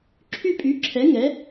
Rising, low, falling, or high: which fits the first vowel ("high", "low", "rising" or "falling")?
falling